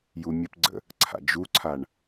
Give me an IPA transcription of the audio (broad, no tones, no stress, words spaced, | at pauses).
jumʲəpɡ͡ǀə̰ | ǀʰa̰d͡ʒuǀʰaɳ